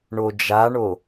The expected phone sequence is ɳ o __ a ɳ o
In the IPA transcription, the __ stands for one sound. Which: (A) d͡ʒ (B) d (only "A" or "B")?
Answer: A